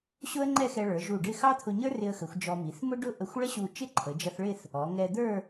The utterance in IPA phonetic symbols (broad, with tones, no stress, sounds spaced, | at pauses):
ɕ ʊ˥ ə̯ ŋ͡ǃ ɛ˥˧ x ɛ˧ ɭ ə˞˩˧ ʒ u˧˩ ɖ ɪ˥˧ x ɑ˥ t̪ʰ ʊ˧ ɲ ə˞˥ r ɪ˧ ə̯ x ə˩˧ xʷ d͡ʒ ɔ˧ m i˩˧ θ m ʊ˥ ɖ ʊ˥ ʔ ə˧ xʷ ɭ ə˥ ɕ u˧˩ t͡ʃ ɪ˥ ǃʰ ə˩˧ d͡ʒ ʌ˧ θ ɭ ɪ˥˧ θ | ɔ˩˧ ŋ ɛ˧ d̪ ə˞˥˧